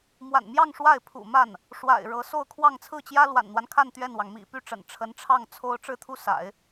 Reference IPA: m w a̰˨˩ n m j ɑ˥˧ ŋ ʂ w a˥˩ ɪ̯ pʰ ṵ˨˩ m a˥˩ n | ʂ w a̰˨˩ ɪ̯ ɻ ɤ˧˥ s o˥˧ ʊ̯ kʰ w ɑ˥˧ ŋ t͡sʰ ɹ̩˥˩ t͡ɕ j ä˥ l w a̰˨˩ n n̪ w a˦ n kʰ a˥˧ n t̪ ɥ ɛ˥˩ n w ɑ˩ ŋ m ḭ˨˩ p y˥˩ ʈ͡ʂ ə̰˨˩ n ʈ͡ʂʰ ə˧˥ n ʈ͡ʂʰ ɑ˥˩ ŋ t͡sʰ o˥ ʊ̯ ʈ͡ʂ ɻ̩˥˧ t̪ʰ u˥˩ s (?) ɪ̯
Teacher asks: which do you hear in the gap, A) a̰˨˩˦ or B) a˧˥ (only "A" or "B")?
A